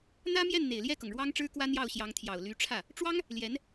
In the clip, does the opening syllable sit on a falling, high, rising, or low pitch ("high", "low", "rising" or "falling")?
high